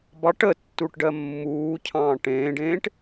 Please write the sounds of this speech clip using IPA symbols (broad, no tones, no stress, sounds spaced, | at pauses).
b ɑ ʈ ə tː u ʈ ɖ ɜ mː uː cʰ ɑ̃ː ʈ ẽː ɖ ẽː ʈ